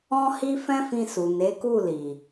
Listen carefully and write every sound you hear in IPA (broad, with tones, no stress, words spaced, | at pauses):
ɔ̃˧hi˧ fɛ̃˦fĩ˧su˨ ne˨˦ku˦˨li˨